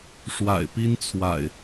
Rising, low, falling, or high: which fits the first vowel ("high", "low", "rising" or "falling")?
low